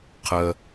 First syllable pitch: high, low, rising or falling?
low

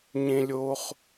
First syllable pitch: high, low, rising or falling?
low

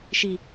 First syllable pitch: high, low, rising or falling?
low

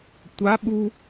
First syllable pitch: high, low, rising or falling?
rising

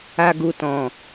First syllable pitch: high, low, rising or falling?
low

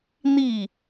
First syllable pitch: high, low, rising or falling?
falling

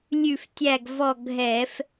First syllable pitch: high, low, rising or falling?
falling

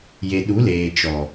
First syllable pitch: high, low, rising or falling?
low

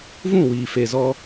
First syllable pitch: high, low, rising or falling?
falling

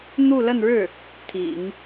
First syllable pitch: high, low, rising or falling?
falling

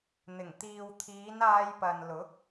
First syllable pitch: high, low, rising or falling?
low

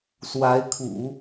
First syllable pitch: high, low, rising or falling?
rising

